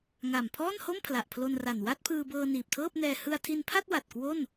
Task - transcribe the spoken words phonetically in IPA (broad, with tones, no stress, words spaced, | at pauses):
ŋa˨˩mpʰɔː˥˩nho˥˩m pʰla˨˩ʔpʰlo˧nra˨˩n wa˥˩t̚pʰɯː˧bɤː˧ niː˨˩p̚tʰɤː˥˩p̚nɛː˧ hɯ˧a̯tʰi˧npʰa˥˩t̚ wa˨˩t̚kwo˥˩n